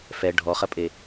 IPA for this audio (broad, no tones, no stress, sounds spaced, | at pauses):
f ɛ ɖʱ ɔ χ ɐ pʼ e